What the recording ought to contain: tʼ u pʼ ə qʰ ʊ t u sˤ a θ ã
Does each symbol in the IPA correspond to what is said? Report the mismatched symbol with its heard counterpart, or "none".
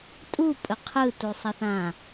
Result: ʊ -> ɯ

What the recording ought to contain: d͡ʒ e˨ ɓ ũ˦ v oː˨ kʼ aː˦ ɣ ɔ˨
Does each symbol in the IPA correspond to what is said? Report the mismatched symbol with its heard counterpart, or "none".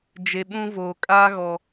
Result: none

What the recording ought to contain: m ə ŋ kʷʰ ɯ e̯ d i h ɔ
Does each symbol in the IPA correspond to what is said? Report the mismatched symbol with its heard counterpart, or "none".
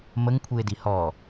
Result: none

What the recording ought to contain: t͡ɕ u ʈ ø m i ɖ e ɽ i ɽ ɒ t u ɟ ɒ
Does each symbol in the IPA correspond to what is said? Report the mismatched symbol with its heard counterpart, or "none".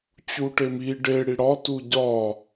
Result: ø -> e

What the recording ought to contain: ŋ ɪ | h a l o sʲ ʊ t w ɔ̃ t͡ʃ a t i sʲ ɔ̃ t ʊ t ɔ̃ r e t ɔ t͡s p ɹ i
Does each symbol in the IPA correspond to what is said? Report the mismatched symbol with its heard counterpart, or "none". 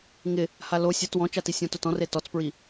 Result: none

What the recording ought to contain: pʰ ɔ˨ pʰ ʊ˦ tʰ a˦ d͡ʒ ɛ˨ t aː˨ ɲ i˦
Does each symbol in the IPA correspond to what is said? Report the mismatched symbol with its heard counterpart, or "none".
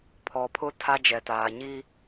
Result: none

